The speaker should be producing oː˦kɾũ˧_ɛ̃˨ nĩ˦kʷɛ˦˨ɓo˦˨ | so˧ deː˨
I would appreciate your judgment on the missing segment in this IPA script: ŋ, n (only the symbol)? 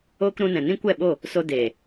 n